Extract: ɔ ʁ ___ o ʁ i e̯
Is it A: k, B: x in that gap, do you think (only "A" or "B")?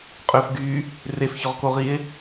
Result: A